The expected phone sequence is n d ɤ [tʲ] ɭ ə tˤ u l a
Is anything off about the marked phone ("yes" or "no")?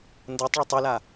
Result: yes